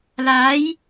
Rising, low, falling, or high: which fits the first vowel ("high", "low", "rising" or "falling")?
rising